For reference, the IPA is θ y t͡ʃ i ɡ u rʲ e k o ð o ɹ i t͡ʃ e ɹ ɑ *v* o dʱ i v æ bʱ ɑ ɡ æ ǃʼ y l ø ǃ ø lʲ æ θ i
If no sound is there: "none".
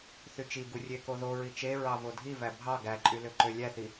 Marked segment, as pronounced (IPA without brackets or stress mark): v